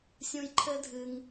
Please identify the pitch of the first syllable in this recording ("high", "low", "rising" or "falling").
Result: high